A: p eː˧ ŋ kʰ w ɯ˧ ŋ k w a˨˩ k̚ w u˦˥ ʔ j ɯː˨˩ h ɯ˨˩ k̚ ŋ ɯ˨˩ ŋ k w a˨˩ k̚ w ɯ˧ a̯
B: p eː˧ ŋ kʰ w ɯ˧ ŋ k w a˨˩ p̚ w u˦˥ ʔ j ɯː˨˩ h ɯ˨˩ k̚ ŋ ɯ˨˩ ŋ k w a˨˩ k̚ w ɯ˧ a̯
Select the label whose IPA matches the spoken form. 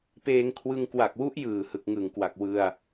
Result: A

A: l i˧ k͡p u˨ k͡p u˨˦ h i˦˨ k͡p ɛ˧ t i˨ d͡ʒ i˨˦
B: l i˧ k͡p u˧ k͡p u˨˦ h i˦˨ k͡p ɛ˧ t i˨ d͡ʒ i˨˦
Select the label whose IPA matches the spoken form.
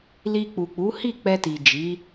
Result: A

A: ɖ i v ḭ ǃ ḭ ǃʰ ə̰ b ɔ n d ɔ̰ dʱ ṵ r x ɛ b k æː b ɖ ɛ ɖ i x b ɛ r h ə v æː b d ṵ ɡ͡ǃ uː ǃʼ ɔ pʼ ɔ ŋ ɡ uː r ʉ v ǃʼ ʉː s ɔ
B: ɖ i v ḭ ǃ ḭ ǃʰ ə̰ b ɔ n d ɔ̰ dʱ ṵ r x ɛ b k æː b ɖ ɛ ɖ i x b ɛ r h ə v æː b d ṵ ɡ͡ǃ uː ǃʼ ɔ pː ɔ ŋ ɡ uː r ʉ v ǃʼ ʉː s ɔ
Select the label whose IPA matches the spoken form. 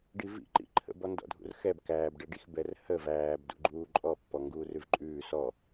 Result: B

